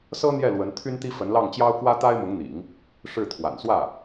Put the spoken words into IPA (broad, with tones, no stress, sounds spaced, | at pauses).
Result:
s ɤ˥ n̪ j ɛ˥˩ l w ə˧˥ n t̪ʰ y˥ n t̪ i˥ f ə˧˥ n l ɑ˥˩ ŋ t͡ɕ j ɑ˥ ʊ̯ k w ä˥ t̪ a˥ ɪ̯ m ʊ˧˥ ŋ n̪ ḭ˨˩˦ ŋ | ʂ ɻ̩˥˩ t̪ʰ w a̰˨˩ n s w ä˥˩